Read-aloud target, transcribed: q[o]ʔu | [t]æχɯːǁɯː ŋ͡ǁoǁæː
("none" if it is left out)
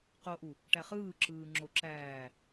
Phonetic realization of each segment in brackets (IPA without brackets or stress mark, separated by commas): o, ʈ